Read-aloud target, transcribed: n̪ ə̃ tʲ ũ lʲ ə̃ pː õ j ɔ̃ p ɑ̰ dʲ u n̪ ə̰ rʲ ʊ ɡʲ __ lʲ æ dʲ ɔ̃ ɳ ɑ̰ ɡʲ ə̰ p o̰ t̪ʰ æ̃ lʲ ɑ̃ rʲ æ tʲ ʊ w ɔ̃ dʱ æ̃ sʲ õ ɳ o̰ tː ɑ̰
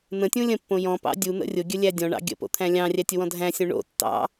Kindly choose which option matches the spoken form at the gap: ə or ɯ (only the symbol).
ə